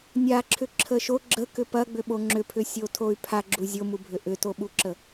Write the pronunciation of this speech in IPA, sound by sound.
nʲ a ǁʰ ʏ ǁʰ ə ʃ o ɡ͡ǁ ə k ʏ p ɐ ɡ͡b ʏ ɓ o ŋ͡ǁ ʏ pʰ ʏ sʲ o tʰ o y̯ pʰ a ɡ͡ǁ u zʲ o m u bʱ ʏ ʔ ʏ t o ɓ u ǁ ə

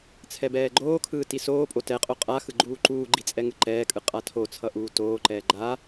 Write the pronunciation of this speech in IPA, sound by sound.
t͡sʰ ɛ b ɛː ɡ͡ǃ oː kʰ ɯː t i s oː pʼ o t ɛ qʼ o qʼ a x ɯ ɡ͡ǃ uː ǃ uː ɡ͡ǃ i t͡sʼ ɛ ŋ ɯ ǃ ɛː kʼ ɯ qʼ a tʰ o t͡sʰ ʌ ʔ uː t oː ǃ ɛː ɡ͡ǃ a

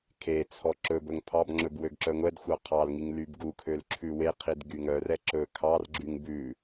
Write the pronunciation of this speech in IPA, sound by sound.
kʰ e t͡sʰ ɔ ǁ ɵ b ɵ ŋ pʰ ɑ b ŋ͡ǁ ɵ b w ø ɡ ǁ œ ŋʷ ɛ d xʷ ɑ qʰ ɑ l ŋ i ŋ l y b ɡ u kʰ ø l ǁʰ ʉ w e qʰ i d ɡ y ŋ œ r ɛ ǁ ɵ kʰ ɑ r ɡ͡ǁ y ŋ b ʉ

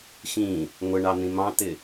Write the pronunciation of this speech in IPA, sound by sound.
x ĩ | ŋʷ ə ɳ ɑ n̪ ĩ m ɑ̃ t̪ ɪ

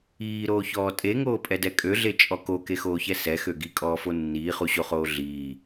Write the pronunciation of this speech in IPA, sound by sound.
iː ɾ oː ç ɔː tʼ e ŋ oː pʼ ɛ d ɛ kʼ ø ɮ e t͡ʃʼ ɔ k o k e x oː ç ɛ s ɛ x ø ɡ i kʼ ɔː f o nː iː χ u ɕ o χ oː ɮ iː

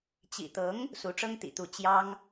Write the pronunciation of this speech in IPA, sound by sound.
t͡ɕ ḭ˨˩ t̪ ɤ˧˥ ŋ | s u˧˥ ʈ͡ʂ ɤ˥ ŋ t̪ ḭ˨˩ t̪ u˧˥ t͡ɕ j ɑ˥ ŋ

